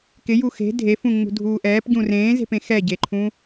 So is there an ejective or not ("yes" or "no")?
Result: no